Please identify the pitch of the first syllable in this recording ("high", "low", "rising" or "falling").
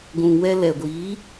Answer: low